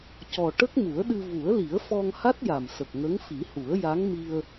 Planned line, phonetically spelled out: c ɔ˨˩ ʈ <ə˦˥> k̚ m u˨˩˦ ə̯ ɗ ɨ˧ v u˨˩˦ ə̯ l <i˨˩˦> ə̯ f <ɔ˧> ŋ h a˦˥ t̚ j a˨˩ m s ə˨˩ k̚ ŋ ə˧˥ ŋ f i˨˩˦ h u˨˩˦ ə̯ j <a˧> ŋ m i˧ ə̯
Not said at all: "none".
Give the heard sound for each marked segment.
ə˦˥, i˨˩˦, ɔ˧, a˧˥

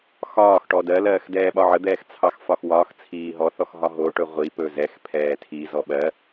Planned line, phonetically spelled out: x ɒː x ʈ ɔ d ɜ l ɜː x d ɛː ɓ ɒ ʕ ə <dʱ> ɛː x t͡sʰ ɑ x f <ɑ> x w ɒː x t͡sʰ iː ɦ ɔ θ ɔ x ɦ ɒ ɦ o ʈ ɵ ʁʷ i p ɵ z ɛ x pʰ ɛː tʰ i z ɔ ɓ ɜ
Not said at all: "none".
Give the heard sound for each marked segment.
d̪, ɒ

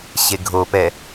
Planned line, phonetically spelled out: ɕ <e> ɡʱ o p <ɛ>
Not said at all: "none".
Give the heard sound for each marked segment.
e, ɛ

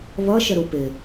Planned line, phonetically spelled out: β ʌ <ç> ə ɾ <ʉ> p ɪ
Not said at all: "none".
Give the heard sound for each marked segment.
ʃ, u

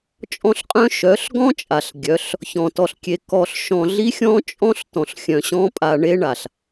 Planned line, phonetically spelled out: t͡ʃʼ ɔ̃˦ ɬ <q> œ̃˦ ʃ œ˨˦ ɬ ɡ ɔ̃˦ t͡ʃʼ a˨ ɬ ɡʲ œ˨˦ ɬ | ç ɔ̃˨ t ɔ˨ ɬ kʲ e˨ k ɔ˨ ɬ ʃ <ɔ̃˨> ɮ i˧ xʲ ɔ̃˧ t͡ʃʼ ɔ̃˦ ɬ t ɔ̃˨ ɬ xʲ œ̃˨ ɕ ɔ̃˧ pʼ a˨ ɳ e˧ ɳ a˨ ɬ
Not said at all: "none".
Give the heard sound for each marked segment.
qʼ, ɔ̃˨

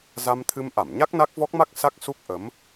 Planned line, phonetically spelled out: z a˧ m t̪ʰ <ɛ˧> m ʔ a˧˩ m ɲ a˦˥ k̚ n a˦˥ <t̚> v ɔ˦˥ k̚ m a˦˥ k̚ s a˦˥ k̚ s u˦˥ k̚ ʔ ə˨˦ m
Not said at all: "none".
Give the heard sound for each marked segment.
ɨ˧, k̚

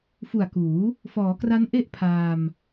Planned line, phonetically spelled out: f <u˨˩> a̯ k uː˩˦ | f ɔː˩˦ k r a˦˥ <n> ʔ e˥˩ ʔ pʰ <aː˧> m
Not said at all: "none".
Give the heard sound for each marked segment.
u˨˩, n, aː˧

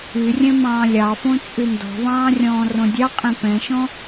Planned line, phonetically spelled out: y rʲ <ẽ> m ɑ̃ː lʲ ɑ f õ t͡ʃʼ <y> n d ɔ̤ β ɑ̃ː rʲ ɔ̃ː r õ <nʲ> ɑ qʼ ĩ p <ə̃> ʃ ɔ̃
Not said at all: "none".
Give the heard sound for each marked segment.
ɛ̃, y, dʲ, ɛ̃

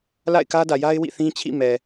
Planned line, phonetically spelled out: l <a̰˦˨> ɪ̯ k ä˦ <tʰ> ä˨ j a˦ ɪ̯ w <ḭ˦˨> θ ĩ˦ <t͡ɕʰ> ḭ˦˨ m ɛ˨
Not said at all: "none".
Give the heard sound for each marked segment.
a̰˦˨, d, ḭ˦˨, t͡ɕʰ

